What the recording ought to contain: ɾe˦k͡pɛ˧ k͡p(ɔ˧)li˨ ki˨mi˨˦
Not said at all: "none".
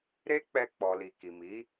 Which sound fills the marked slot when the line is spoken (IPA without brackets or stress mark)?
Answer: ɔ˨